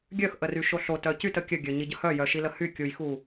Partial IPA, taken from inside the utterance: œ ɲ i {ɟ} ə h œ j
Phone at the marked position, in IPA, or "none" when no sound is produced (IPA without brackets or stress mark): ɟ